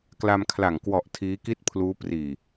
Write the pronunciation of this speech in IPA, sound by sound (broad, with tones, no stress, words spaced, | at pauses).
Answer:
kla˧mkʰla˨˩ŋ kwɔ˨˩ʔ tʰiː˦˥ki˥˩t̚pʰluː˦˥ priː˨˩